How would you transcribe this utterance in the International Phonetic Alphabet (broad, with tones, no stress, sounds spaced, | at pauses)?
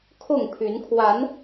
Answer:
kʰ ʊ˥˨ ŋ pʰ y˨˦ n kʰ w a˨˦ n